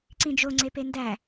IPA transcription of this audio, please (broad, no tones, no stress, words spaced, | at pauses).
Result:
ǀĩd͡ʒo ŋ͡ǀependæ